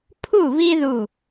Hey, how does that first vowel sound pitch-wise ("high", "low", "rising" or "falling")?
falling